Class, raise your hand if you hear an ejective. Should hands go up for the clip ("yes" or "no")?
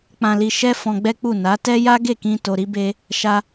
no